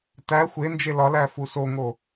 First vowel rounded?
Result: no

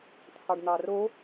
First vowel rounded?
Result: no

